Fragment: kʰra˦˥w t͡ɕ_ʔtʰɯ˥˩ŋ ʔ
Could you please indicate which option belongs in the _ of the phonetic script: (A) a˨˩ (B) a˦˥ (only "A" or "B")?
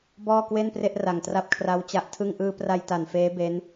B